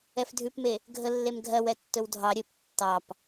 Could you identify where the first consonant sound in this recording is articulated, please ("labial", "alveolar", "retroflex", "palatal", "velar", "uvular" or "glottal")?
labial